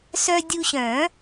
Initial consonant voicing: voiceless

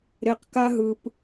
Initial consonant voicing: voiced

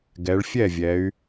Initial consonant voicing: voiced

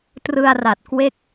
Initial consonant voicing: voiceless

